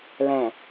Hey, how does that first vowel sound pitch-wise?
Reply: low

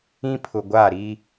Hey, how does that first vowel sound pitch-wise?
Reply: high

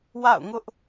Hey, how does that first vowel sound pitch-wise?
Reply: falling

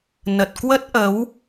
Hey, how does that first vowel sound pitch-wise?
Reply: low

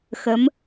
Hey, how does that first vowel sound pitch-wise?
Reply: rising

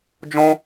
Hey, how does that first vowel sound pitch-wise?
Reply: high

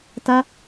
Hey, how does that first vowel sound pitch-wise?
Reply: high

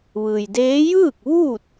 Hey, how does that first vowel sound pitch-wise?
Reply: low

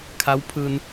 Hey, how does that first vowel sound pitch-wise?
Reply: rising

